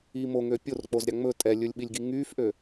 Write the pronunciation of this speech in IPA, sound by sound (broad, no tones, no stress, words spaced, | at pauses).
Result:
i moŋø pʲork͡pozɾʲɑ ŋ͡mɵ tʼɛlʲɵlʲɓilʲɡi ŋyfʔø